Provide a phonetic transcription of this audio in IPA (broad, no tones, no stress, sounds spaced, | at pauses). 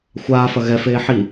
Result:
xʷ aː f ɐ ɣ ɛ f eː ħ i